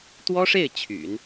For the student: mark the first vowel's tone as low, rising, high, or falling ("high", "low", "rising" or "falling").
high